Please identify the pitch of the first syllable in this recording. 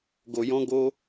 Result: low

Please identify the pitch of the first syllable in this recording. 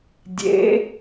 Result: rising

